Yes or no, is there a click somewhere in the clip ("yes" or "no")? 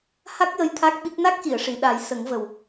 no